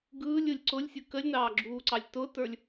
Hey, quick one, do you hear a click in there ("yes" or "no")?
yes